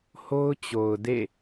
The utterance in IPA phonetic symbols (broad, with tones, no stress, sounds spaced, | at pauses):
h o˦ ʊ̯ t͡ɕ o˨ ʊ̯ d ḛ˦˨